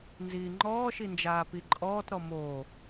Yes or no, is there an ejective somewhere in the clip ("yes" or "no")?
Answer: yes